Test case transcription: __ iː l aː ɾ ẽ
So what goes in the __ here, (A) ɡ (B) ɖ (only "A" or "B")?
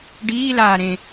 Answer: B